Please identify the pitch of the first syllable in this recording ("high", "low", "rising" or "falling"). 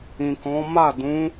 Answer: low